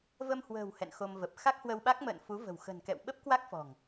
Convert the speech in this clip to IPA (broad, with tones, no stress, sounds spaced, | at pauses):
v ə˧ m h w ə̤ː˨˩ w h ɛ̰˧˨ n x o˧ m v ə˨˩ p̚ x a˦˥ k̚ h w ə˧ w ɓ a˦˥ k̚ m ə̰ː˧˨ n f u˨˦ v ə̤˨˩ w x ə̤˨˩ n k ɛ̰˧˨ w ɓ ə˦˥ p̚ k w a˦˥ k̚ f ɔ̤˨˩ ŋ